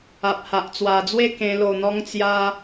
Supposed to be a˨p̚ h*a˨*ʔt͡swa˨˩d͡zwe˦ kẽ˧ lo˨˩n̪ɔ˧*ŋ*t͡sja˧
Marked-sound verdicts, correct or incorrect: correct, correct

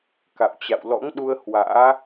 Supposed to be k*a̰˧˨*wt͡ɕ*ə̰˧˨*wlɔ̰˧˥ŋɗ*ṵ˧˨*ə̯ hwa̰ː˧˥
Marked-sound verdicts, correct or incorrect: correct, incorrect, incorrect

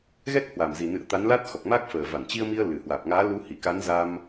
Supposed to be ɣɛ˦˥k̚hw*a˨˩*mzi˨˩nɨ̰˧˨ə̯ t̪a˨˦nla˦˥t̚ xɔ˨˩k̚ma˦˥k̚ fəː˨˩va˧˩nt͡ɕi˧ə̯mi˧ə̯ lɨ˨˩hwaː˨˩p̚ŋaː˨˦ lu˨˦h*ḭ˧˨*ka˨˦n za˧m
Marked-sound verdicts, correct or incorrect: correct, incorrect

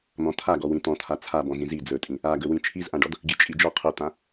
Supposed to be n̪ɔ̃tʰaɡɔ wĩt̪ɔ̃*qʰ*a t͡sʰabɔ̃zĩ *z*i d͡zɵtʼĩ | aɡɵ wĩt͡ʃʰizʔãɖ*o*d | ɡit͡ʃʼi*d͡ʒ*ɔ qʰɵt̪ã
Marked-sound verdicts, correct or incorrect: incorrect, correct, incorrect, correct

